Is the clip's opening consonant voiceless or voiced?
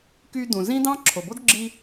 voiceless